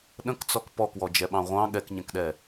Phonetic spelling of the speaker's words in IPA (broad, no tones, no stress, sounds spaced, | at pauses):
ɗ ə̃ k t͡s ɔ k p ɔ k w ɔ d͡ʒ ɛ ɓ ɑ̃ ʁʷ ɑ̃ ɠ ɛ k ɲ ɛ̃ k ɗ ɛ